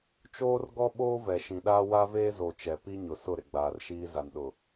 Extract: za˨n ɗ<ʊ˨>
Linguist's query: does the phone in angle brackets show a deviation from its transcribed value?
no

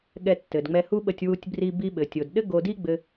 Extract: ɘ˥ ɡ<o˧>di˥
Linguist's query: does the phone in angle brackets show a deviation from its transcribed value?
no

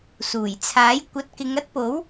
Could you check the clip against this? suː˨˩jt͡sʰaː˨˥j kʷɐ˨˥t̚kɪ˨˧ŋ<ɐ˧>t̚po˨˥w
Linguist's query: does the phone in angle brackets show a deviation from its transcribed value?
yes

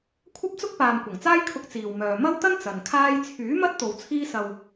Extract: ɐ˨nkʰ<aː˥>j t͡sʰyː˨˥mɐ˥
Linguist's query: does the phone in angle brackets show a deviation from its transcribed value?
no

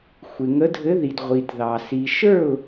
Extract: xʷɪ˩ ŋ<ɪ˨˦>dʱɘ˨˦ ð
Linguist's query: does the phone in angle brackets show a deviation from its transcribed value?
yes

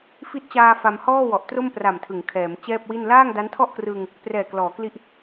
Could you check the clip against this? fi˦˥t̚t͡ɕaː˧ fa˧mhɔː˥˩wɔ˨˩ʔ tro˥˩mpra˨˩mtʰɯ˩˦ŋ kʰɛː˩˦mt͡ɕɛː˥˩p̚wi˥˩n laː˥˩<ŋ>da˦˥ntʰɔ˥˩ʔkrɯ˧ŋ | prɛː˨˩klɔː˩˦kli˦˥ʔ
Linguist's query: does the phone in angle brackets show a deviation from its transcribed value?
no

